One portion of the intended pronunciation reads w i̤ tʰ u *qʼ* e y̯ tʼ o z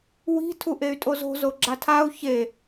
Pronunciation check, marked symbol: incorrect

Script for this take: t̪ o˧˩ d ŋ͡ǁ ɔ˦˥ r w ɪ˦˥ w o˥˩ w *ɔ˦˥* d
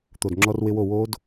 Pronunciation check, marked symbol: incorrect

